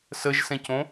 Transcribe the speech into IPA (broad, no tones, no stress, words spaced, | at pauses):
səʒsɛ̃cõ